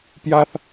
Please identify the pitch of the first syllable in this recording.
high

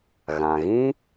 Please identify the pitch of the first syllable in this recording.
low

